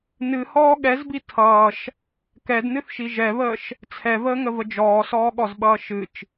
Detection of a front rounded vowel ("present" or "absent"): absent